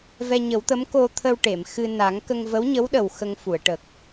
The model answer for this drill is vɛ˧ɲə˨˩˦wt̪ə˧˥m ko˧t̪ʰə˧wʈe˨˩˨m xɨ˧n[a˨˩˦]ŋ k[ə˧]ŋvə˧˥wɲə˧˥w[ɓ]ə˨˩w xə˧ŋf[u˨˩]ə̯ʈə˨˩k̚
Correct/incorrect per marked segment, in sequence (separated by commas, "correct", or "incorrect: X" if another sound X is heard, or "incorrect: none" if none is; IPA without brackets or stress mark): correct, correct, incorrect: ɗ, incorrect: u˨˩˨